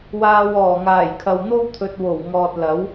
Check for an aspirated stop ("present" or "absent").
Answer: present